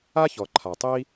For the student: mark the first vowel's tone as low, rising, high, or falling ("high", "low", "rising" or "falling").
high